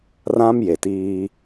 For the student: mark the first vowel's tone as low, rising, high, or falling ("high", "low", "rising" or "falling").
high